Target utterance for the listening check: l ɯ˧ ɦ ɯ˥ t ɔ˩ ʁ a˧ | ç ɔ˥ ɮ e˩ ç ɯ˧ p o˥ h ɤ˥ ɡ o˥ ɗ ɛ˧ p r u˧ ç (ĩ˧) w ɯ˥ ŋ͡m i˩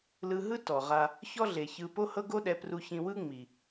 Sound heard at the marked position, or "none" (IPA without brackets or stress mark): ĩ˧